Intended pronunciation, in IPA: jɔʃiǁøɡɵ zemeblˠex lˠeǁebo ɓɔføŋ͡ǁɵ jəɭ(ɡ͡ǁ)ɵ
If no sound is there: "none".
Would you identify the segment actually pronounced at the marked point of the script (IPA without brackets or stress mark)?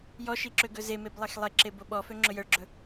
ɡ͡ǁ